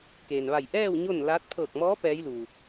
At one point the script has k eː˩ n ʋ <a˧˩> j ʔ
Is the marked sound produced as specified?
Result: yes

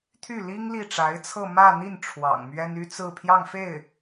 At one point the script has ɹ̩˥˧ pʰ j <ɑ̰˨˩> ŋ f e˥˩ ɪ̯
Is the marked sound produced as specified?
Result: no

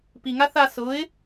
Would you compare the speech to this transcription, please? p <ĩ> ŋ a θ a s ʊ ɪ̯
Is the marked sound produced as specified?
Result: no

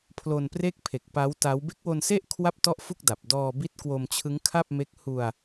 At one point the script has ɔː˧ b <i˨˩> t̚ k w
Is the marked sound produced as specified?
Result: no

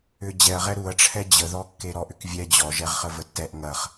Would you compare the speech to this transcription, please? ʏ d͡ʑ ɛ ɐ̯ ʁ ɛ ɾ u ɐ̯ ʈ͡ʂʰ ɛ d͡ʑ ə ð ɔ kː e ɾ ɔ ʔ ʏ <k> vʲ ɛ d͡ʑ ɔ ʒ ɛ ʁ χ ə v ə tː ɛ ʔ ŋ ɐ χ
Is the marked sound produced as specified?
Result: yes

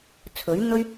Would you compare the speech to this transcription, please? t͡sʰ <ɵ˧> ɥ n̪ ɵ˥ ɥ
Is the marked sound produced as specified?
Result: no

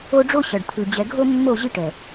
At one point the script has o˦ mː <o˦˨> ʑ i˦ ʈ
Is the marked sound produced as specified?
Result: yes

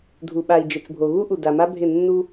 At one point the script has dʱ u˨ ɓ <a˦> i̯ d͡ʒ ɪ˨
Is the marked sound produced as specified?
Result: no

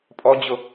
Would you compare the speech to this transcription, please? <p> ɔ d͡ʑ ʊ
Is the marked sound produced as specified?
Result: no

